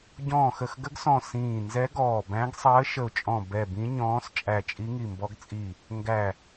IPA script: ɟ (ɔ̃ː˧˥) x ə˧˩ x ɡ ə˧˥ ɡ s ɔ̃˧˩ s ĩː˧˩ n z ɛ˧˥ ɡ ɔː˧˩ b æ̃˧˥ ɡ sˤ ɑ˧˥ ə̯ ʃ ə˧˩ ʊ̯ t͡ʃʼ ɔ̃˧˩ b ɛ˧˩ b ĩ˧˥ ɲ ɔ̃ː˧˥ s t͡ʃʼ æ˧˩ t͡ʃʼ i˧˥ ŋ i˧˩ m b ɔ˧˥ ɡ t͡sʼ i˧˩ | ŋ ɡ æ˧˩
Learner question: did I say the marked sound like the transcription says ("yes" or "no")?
no